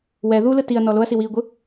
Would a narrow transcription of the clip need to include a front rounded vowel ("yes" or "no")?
no